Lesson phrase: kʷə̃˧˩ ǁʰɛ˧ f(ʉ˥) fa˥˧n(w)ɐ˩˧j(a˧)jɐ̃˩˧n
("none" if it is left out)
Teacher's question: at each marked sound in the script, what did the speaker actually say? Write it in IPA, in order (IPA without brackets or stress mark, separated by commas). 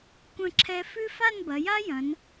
ʉ˥, b, a˥